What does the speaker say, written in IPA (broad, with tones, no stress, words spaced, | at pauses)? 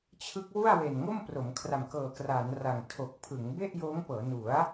t͡ɕʰɯ˦˥k̚wu˥˩a̯ we˨˩nŋo˥˩mpro˩˦m kʰra˨˩mkɤː˨˩kraː˩˦n ra˨˩ŋ tʰo˨˩k̚pʰɯ˩˦ŋ be˥˩ʔjoː˦˥ŋpɤː˩˦nu˩˦a̯